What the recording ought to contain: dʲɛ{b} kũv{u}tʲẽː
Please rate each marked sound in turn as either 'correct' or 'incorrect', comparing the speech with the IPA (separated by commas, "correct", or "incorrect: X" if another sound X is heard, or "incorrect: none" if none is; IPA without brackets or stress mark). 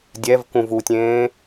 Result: incorrect: v, correct